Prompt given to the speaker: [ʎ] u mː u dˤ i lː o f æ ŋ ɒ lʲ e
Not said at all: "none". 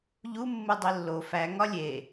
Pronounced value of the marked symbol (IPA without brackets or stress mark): ʎ